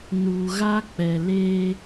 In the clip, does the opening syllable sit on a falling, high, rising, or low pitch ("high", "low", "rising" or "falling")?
low